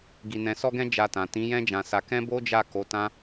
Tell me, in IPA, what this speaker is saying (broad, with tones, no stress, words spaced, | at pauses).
ɡi˧nɛ̃˧sɔ˦ɡɛ̃˦ d͡ʒa˧tã˨ tĩ˨˦jɛ̃˦d͡ʒã˧sa˧ kɛ̃˦bo˦d͡ʒa˦˨ko˨˦ tã˦